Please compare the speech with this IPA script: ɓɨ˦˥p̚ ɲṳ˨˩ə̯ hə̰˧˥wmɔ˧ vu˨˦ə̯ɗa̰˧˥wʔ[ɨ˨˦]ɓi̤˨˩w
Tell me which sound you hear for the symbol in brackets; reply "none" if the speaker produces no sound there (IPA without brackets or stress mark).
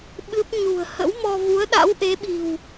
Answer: e˨˦